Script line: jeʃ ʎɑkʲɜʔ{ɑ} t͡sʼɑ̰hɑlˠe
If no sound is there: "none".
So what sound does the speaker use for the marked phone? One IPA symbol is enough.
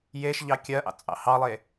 ɑ̰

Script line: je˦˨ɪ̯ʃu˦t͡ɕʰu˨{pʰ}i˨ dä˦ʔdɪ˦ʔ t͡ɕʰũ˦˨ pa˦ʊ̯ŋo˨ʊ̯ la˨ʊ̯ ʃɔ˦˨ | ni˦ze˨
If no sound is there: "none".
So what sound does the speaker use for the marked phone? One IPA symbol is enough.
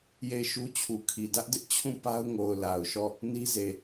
kʰ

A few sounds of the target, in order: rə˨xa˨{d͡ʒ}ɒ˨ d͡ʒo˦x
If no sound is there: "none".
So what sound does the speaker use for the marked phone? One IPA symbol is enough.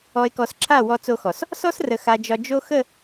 d͡ʒ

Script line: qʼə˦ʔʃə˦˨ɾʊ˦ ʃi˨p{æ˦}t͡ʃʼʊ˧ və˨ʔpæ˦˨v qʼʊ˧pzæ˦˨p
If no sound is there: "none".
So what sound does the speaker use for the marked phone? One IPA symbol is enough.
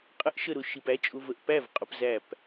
æ˦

